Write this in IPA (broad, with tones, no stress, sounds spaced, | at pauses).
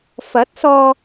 f ɐ˨˥ t̚ s ɔː˧